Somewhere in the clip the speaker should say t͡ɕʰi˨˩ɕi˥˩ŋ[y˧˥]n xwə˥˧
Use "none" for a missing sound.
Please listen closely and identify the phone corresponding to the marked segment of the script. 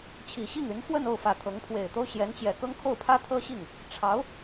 y˧˥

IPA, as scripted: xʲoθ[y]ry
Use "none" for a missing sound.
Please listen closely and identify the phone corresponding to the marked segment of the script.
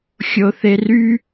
e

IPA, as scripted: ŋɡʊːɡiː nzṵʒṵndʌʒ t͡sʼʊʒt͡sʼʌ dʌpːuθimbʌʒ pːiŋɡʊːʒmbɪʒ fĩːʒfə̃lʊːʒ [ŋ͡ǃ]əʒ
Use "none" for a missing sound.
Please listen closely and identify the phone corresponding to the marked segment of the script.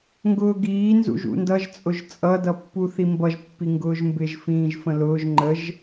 ŋ͡ǃ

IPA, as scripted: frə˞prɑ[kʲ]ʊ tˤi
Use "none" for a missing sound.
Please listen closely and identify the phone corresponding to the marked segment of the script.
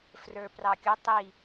kʲ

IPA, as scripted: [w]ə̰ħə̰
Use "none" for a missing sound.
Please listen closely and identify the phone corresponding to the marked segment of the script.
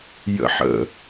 j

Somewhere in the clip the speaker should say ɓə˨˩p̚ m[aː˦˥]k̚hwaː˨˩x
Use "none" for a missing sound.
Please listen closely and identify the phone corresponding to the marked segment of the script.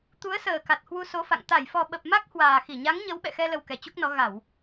a˦˥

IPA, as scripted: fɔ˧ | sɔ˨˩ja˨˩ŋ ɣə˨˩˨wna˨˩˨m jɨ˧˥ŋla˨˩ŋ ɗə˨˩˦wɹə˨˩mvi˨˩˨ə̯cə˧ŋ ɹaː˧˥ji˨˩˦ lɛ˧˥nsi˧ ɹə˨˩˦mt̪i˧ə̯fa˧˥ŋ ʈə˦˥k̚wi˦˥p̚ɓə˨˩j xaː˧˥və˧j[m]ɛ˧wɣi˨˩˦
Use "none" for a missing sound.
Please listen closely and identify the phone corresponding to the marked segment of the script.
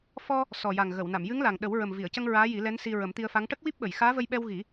ɓ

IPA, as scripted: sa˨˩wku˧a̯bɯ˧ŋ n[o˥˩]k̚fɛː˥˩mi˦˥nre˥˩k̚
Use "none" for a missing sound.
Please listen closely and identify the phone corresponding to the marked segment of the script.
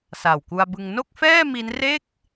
o˥˩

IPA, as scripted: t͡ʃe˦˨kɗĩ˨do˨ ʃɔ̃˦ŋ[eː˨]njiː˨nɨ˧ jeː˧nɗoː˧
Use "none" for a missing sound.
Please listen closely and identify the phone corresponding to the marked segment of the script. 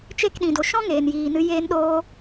eː˨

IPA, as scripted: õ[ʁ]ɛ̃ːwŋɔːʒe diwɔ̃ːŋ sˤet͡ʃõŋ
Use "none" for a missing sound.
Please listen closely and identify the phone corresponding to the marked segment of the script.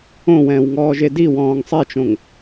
w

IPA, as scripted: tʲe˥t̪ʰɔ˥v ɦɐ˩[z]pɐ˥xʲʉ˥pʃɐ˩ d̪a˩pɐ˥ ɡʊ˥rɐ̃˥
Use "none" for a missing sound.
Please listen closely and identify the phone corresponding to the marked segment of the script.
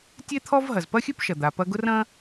z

